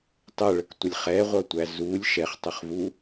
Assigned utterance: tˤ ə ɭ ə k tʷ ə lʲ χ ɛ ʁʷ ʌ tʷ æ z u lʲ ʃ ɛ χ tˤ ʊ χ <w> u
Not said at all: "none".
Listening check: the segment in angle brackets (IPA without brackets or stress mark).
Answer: v